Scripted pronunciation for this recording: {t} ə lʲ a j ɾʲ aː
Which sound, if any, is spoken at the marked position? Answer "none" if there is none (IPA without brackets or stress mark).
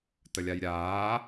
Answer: t